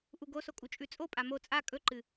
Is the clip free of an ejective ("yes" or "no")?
no